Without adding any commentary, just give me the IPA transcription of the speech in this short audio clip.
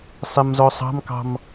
sˤ ɛ m z ɔ sˤ ɑ̤ m k ɑ̤ m

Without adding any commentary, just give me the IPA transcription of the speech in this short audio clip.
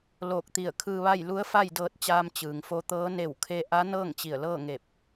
l oː˧˩ k̚ t̪ i˧˩ ə̯ kʰ ɯː˧ ʋ a˥˨ j l u˧˥ ə̯ f a˥˨ j d ɤː˧ t̚ t͡ɕ aː˧ m t͡ɕ ɯː˩ ŋ f o˧ t̪ ɤː˧˥ n e˧˩ w kʰ e˧ ʔ a˧˥ n ɤː˥˨ ŋ t͡ɕ i˧˩ ə̯ l ɤː˥˨ ŋ e˧˩ p̚

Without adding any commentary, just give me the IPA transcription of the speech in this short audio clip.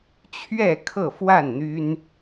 t͡ɕʰ ɥ ɛ˥˨ kʰ ɤ˥˨ f w a˥˨ n n̪ y˦ n

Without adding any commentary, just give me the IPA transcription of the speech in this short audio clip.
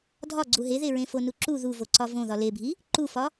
dʱ ɒ ɡ͡ǀ u ɦ e ð e ɹ ẽ f o n u ǁ u ð u v o ǀ ɒ v õ ð ɒ l e bʱ i | ǃ u f ɒ

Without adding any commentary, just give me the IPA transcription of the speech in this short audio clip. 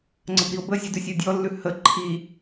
ŋ͡ǀ ə b ɾ i o̯ b ə zʲ ə d ʉ sʲ u dʲ ɔ lː ʉ h ə ǃʰ i

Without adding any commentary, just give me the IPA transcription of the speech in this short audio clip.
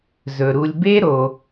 z ɵ˩ ɾ u˨ lʲ b e˥ ɾ o˨

